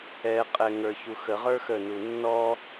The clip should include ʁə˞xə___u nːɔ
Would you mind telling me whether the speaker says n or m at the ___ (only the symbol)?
n